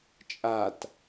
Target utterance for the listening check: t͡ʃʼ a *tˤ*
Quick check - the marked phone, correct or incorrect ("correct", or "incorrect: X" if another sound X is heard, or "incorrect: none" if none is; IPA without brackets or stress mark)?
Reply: incorrect: t